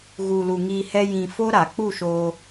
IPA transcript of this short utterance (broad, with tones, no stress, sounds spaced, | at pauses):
ɣ u˨ l u˨ ŋ iː˧ h ɛ˦ j ĩ˧ f o˦ ɾ a˨ k͡p u˦˨ ʃ o˧